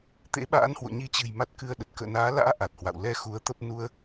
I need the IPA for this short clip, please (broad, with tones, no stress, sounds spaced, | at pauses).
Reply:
t̪ ḛ˧˥ ɓ a̰ː˧˥ n h w o̰˧˨ ɲ i˨˦ t͡ɕ ɨ̤˨˩ j m a˦˥ t̚ k ɨ˧ ə̯ ɗ ə˨˩ t̚ k ə̰ː˧˨ n aː˨˦ l a̰ː˧˥ ʔ a˨˩ t̚ h w a̰˧˨ w l ɛ˧ x u˨˦ ə̯ t̪ ə˦˥ p̚ n u˧ ə̯